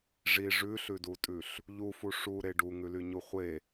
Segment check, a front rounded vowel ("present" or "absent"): present